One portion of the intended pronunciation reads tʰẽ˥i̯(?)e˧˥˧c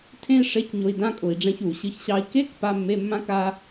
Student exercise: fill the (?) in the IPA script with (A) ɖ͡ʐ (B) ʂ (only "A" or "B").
B